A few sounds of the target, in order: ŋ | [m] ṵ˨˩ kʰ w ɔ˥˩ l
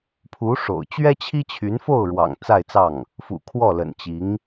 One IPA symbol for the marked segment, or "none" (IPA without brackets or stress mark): f